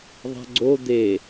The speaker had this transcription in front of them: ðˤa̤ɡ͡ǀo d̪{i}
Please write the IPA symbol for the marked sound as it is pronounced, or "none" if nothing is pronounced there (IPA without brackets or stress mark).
e